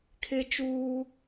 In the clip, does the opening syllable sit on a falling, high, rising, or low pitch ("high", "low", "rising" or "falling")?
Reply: high